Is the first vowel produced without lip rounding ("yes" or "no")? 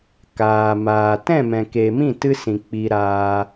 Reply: yes